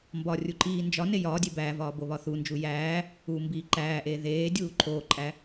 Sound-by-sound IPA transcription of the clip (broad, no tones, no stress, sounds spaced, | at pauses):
m b ɒ rʲ u ǃ iː n d͡ʒ ɒ n e j ɒː dʲ e b æː v ɒː b o β ɒ θ u n d͡ʒ u j æː | uː m b iː ǃ æː ʔ eː ð eː dʲ uː ǃʰ oː ǃʼ æ